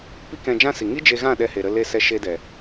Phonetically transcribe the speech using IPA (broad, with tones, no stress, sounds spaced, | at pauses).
p i˦ k ɛ̃˧ d͡ʒ ã˦ s i˨ ŋ i˦ d͡ʒ e˧ ɣ ã˦˨ ɗ ɛ˧ h e˨ ɾ ə˧ l e˧ s ɛ˧ ʃ e˧ d ɛ˨